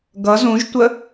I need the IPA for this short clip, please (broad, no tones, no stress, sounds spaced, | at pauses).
ɡ ʌ z ũ ʒ tʷ ə